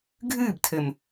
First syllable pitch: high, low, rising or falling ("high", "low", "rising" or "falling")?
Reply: falling